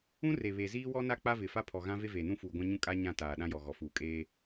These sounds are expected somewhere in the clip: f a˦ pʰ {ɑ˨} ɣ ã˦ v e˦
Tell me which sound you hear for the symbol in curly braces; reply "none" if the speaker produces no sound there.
ɔ˨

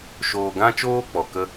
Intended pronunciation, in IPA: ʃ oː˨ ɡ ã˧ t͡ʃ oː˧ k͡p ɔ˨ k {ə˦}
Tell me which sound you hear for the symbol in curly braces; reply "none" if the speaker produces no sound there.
ə˦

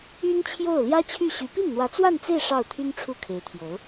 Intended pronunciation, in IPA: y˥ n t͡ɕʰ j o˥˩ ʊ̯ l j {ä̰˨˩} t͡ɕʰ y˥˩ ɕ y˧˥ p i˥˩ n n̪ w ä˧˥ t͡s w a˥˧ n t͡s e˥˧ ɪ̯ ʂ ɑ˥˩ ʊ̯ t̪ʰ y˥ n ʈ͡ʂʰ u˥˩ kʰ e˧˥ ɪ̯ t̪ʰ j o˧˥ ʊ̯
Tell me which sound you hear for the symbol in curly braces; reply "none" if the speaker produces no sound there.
ä˥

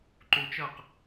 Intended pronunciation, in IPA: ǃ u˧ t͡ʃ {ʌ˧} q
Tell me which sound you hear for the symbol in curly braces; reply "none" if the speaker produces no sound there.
ʌ˥˩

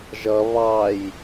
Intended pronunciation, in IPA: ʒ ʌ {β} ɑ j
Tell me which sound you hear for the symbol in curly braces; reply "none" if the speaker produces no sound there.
β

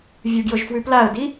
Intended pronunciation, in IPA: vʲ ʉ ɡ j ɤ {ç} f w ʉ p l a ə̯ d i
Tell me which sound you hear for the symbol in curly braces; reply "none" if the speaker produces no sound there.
ʒ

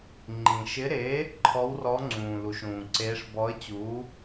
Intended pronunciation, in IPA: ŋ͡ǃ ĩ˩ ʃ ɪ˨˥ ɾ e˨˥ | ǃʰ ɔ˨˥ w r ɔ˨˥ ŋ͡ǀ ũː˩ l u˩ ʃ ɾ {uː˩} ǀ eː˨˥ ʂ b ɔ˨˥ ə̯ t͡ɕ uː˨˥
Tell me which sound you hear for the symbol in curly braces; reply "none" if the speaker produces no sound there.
ũː˩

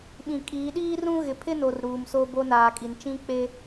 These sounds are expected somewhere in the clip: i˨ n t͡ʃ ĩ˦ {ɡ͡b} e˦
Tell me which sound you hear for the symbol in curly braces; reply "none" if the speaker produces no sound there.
k͡p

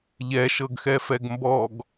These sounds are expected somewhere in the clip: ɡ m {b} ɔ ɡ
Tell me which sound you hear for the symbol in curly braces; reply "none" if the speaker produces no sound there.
b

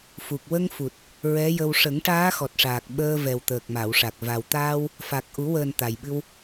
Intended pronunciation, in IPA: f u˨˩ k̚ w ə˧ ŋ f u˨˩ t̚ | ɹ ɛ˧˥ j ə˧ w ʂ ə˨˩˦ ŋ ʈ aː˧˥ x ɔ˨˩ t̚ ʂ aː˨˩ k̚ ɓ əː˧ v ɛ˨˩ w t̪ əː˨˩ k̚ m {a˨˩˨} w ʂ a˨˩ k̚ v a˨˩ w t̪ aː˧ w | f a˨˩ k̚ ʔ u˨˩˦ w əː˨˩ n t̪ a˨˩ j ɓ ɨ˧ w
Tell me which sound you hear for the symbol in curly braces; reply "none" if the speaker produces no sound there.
a˨˩˨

